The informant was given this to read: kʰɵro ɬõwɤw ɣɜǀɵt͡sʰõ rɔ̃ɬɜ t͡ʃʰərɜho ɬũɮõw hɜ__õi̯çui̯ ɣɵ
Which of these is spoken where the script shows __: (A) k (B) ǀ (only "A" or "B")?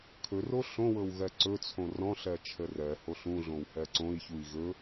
B